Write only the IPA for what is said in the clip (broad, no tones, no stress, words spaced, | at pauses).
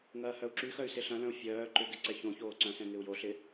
ŋɐːhœu̯ǁyxœy̯ sɪɬɐ̃lœ̃u̯ fʲœː ǃʏɡɪ ǀɛçõçoː ǀœ̃sɛ̃ ŋɪu̯joɬɪ